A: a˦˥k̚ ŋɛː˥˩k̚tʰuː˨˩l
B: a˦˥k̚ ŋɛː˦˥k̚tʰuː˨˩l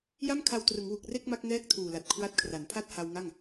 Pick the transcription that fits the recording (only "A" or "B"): A